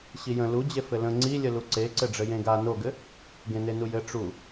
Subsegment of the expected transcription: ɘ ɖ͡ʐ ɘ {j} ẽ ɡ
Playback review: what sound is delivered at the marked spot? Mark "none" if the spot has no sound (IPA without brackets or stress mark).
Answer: j